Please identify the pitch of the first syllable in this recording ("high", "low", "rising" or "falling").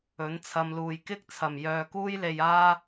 rising